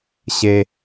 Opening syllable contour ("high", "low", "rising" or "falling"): low